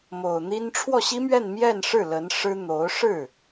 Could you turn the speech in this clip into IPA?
m o˨˩ ʊ̯ n̪ i˥ n ʈ͡ʂʰ w ɔ˥˩ ɕ i˥ m ɥ ɛ˥˧ n m j ɛ˥˧ n ʂ ɻ̩˥˩ l ə˧˥ n ʂ ɻ̩˥ n̪ o˧˥ ʊ̯ ʂ ɻ̩˥˩

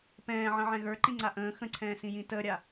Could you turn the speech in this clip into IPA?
p ɛ̃ː ʕ ə̃ ʕ ɛ̃ ɣ ə˞ ǃ ĩ ŋ͡ǀ a ʔ ə̃ː x ə̃ ǀʰ ɛ̃ː s ĩ j ĩ t əː ɾʲ a

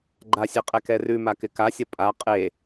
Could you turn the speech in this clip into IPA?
ɡ͡ǃ a sʲ e qʼ ɛ k ɛ r ʉ m a k ɪ k a sʲ ɐ pʼ a qʼ e

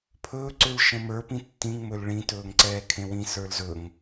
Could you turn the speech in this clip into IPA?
pʰ ɵ ǀ ʏ l ʃ ə̃ m ə˞ p ĩ tː ĩ ŋ m ɵ l ɭ ĩ t ɵː ŋ ǀ ɛː kʰ ẽ w ĩ s ə˞ l z ɵ ŋ

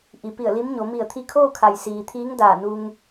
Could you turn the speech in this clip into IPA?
ʔ i˩˧ p i˧˩ ə̯ l i˧˥ m ɲ o˩˧ m i˧˩ ə̯ t̪ʰ i˧ kʰ oː˥˨ kʰ a˩ j s iː˩ t̪ʰ iː˧˥ ŋ d aː˧˩ n u˧ ŋ

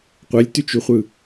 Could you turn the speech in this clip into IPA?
qʷ ɛ lʲ t y t͡ʃ y χʷ ɯ

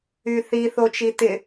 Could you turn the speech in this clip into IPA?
y θ i θ o t͡ʃ i t ɪ

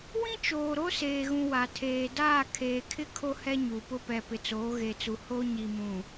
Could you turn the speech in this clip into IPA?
w ĩ˦ t͡ʃ oː˨ ɾ o˦ s eː˨ ɣ ũ˨ w a˨ tʰ eː˨ d aː˦˨ kʰ eː˨ kʰ ɪ˦ kʰ o˦ h ɛ˦ ɲ u˨ p ʊ˦ p ɛ˨ p ɪ˨ t͡s oː˨˦ ɣ e˨ t͡s u˨ h o˦ ɲ i˨ m ũ˨

